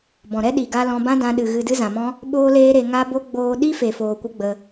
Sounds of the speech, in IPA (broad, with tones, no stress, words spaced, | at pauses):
bɔ̃˨ ɾɛ˦ ɗi˨ɡa˧ lɔ̃˧bã˦dã˧ɗɨ˨ ɣɨ˧dɨ˦zã˨mɔ̃˦ | ɓoː˦leː˦ ɾe˧ŋa˦bo˦ ɡ͡boː˧ɗi˦fe˨ foː˧kʷə˦ɡ͡bə˧